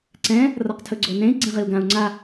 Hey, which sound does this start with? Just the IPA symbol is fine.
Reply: ǀ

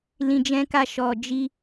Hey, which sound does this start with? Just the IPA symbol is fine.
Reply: l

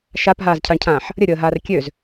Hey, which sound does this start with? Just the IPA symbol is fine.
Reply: ʃ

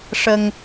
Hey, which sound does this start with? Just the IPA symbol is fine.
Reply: ʂ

